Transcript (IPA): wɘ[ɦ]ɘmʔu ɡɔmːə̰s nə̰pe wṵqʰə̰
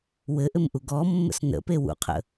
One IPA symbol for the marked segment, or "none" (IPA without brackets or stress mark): ʔ